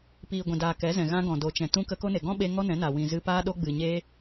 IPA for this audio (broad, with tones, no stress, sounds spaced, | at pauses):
p iː˨ ɡʷ ɛ̃˨ d aː˨ k ɛ˨˦ z ɛ̃˨ ɣ ã˦ ɡ ɔ̃˨ d o˨ t͡ʃ ɛ̃˨ t ũ˧ k ə˧ k o˦ n e˨ ɡ ɔ̃˦ ɓ e˧ ŋ ɔ˦ n ɛ̃˨˦ n a˨ w ĩ˨ z ɨ˧ p aː˦ ɗ o˦ ɡ͡b ɨ˨ ɲ eː˦